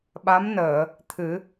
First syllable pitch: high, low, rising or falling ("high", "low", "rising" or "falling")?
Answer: rising